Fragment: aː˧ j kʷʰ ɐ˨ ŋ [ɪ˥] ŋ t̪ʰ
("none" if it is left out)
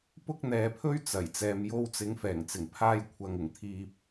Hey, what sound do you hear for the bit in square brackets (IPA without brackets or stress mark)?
ɪ˨˩